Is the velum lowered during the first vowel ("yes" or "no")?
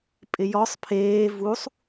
no